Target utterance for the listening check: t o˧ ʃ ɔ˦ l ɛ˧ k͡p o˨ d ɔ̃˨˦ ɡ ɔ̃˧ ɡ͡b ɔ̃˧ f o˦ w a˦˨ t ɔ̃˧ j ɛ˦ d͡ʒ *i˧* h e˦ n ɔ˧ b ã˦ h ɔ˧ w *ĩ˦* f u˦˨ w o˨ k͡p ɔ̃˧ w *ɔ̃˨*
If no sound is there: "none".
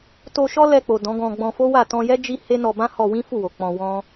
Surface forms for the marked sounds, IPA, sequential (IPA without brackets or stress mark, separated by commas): i˦, ĩ˦, ɔ̃˦